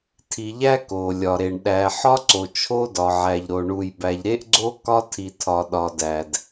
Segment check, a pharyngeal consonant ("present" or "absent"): present